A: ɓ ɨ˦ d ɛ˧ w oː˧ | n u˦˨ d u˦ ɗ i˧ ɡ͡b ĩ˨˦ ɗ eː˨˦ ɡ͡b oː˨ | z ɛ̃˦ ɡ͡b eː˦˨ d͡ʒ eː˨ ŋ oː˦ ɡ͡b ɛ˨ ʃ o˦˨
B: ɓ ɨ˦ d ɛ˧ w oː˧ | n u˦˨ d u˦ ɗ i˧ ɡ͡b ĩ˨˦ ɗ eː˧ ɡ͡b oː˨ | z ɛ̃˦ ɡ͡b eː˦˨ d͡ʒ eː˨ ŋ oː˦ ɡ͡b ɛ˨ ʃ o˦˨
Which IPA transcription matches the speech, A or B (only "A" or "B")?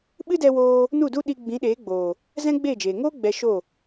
A